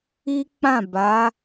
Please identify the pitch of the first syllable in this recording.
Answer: high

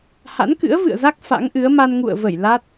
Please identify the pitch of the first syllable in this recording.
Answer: rising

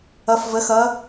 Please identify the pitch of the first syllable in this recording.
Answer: rising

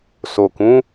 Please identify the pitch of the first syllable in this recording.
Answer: low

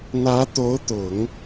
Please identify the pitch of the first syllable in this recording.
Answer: rising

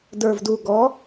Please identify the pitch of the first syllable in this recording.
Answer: low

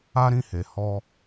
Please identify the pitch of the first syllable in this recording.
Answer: high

